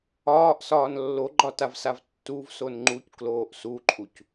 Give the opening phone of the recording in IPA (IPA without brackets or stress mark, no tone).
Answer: ɒː